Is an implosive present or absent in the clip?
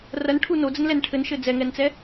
absent